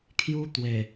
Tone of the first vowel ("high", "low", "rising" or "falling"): high